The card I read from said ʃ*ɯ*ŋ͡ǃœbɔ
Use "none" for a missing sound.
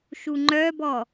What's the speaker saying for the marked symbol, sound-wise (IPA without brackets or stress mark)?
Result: u